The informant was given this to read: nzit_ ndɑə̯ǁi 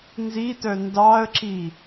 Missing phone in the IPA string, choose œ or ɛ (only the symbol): œ